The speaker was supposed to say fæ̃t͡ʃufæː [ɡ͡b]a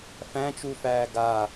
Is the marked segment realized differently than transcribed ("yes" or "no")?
yes